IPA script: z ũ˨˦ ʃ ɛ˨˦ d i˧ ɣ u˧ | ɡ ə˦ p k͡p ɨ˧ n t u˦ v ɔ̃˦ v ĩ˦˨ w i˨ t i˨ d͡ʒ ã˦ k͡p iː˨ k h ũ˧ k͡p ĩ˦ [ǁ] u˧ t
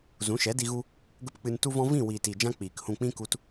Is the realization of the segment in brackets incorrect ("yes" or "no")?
yes